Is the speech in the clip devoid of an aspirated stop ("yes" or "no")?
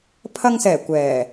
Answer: no